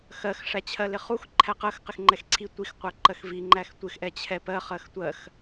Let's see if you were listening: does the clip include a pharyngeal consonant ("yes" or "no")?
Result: no